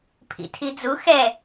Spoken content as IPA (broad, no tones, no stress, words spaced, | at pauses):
pʰḭtʰid͡zu xɛ